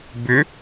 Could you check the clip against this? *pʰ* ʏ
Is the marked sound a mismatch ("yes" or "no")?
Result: yes